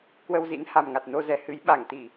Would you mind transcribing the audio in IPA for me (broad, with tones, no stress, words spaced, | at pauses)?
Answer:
kwə˧wzḭ˧˥n ha˨˩mŋa˨˩t̚no˧zɛ˨˩ hɨ˨˦j ɓa˧˩ŋt̪i˧˩˨